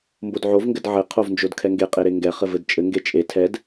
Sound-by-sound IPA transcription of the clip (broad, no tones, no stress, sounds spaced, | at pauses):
m b o d ʕ o v ŋ ɡ ɘ d ʕ ɘ qʰ o v n d͡ʒ o d kʰ ɛ ŋ ɡ e qʼ e ɾ e ŋ ɡ ɛ χ ɘ v ɘ d t͡ʃʼ ɘ ŋ ɡ e t͡ʃʼ e tʰ ɛ d